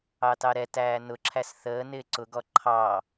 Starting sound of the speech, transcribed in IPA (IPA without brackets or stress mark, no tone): ɑ